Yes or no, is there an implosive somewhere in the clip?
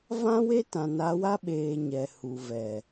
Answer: yes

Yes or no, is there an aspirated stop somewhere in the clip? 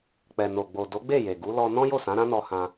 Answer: no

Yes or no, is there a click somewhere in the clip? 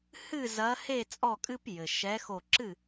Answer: yes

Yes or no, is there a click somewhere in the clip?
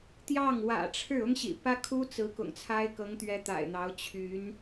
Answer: no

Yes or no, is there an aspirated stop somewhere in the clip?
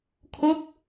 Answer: yes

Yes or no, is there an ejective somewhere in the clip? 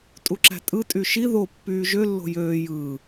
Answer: yes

